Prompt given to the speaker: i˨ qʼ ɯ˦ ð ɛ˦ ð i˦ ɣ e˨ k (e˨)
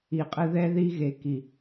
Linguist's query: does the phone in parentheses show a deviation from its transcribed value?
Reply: yes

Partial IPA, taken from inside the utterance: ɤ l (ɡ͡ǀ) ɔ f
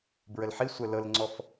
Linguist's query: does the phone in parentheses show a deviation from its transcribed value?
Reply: yes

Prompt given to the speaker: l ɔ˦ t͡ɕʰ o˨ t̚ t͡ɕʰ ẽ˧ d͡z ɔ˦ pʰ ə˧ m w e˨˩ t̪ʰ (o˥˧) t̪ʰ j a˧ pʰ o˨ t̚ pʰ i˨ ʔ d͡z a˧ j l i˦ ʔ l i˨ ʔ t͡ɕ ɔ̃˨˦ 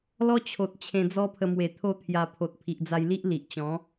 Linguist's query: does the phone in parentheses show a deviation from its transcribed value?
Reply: no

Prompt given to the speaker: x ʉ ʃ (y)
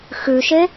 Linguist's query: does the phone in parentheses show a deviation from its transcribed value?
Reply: yes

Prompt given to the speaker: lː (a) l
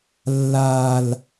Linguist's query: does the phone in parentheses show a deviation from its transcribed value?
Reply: no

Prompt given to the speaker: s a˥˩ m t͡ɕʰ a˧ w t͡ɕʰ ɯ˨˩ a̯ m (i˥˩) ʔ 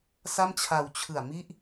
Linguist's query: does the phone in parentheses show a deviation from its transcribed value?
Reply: yes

